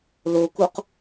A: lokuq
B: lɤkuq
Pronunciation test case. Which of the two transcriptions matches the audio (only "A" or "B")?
A